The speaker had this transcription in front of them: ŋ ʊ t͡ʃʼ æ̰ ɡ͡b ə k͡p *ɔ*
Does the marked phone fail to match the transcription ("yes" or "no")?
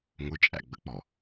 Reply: no